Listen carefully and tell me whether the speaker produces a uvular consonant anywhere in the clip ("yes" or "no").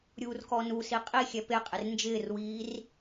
yes